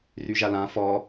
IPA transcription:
r y ʒ a l ã f ɔ

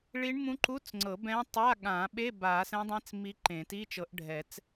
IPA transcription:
ɭ i˧˥ ɳ m ũ˧˥ ǃ u˧˥˧ t͡s ŋ͡ǀ ɤ˨˩˦ b ɛ̃˧˥ tˤ a˧˥˧ ɠ ã˨˩˦ ɓ e˧˥˧ b a˨˩˦ s ɛ̃˧˥ dˤ ẽ˧˥ t͡s m i˧˥ ǃ ẽ˨˩˦ t i˧˥˧ t͡ʃ ɤ˨˩˦ ʔ ɖʱ ɛ˨˩˦ t͡s

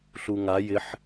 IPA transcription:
ɬ u ŋ a j ɪ ħ

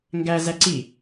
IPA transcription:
ŋ ɡ æ z æ ǀ i

